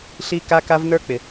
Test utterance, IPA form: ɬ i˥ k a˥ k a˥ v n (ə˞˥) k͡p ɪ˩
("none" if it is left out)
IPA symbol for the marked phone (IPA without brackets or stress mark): ə˞˥